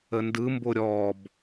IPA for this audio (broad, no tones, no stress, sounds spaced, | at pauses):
ə n d ɯ m b o ɾʲ ɔ b